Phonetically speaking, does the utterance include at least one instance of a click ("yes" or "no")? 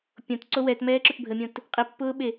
yes